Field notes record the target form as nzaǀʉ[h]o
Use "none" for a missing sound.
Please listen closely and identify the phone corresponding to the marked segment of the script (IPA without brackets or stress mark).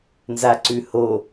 h